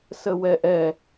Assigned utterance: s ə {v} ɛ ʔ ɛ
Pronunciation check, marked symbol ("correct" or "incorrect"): incorrect